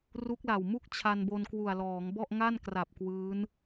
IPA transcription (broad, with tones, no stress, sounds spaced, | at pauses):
r u˦˥ k̚ l a˨˩ w m u˥˩ k̚ t͡ɕʰ a˧ n b o˧ n k w u˨˩ a̯ l ɔː˩˦ ŋ b ɔ˥˩ ʔ ŋ a˥˩ n k r a˨˩ p̚ k w ɯː˦˥ n